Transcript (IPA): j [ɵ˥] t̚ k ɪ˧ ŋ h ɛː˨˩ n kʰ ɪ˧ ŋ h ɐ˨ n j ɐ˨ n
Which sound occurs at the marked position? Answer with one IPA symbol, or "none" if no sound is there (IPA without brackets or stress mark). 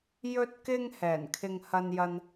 ɵ˧